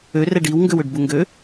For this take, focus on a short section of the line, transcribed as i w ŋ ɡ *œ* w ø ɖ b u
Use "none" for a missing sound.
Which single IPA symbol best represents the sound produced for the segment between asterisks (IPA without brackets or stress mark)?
ø